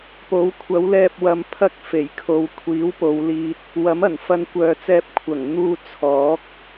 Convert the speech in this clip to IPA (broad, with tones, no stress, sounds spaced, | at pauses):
p o˨˥ w kʷʰ ɐ˨˥ w l ɛː˧ p̚ w ɐ˧ m pʰ ɐ˥ k̚ f e˨˩ j kʰ o˨ w kʷʰ iː˨˥ w p o˨˧ w l iː˧ t̚ | w ɐ˨˥ m ɐ˨˩ n f ɐ˧ n kʷ œː˨ t͡s ɛː˧ p̚ kʷʰ ɐ˨˩ ŋ n̪ uː˧ t͡sʰ ɔː˨˥ k̚